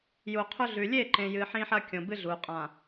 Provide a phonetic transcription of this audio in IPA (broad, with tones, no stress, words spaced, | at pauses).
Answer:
ju˨qʰɵ˦ɮʉ˨ lʲe˦˨ǃẽ˨jɨ˨ ħĩ˦ħɐ˦ kʲõ˨bɨ˦ ɮu˨ qʼã˨